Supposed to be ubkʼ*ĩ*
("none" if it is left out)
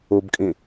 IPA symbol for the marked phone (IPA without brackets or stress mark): ĩ